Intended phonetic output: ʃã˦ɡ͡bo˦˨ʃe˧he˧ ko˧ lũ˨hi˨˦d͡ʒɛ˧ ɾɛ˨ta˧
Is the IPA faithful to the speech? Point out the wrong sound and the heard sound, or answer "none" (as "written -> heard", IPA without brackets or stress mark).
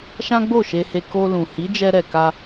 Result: t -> k